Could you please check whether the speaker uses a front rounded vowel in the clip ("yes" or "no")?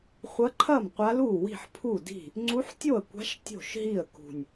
no